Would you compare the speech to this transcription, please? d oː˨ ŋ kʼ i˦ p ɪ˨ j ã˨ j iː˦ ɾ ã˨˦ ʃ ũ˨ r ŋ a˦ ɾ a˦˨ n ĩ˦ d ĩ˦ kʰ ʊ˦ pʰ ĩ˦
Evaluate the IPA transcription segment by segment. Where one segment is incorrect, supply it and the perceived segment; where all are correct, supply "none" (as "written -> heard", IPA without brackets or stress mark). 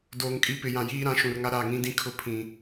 n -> ŋ